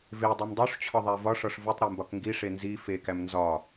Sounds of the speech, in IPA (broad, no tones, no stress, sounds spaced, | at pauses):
v e dˤ u m dˤ u ʂ t͡ɕʰ ɒ ðˤ æ v ɒ ʂ ɒ ʂ v u tˤ ɾ e m b ɒ k ŋ ɡ i ʂ e n z i f e k æ m n z ɒ